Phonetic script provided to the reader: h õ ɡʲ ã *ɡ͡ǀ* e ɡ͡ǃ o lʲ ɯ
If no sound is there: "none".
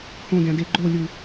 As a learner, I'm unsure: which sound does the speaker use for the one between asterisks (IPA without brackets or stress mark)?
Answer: d